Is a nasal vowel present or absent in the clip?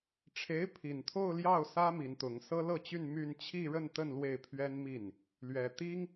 absent